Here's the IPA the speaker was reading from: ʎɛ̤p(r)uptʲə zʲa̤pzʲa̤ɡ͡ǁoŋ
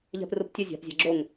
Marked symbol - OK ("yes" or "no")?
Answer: yes